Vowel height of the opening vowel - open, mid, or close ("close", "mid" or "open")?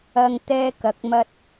open